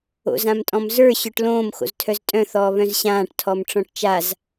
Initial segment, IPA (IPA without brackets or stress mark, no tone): o̰